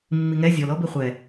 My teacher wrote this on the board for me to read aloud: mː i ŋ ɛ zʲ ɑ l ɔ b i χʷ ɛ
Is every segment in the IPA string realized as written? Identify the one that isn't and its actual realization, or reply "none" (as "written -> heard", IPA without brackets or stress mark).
ɑ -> ɔ